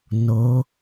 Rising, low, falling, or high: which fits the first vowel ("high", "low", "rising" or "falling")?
rising